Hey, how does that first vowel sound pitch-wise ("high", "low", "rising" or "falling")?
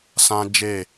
high